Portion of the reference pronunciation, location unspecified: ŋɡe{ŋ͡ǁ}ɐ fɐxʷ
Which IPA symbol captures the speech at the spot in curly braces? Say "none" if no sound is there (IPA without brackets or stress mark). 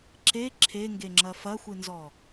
ŋ͡ǁ